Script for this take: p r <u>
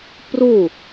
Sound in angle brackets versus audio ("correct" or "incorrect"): correct